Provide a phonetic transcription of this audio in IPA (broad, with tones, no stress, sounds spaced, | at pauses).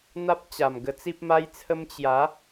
n̪ a˦ p̚ t͡ɕ a˨˩ m ɡ ə˧ t͡s i˦ p̚ m a˦ j t͡sʰ ə˦ m t͡ɕ j a˨˦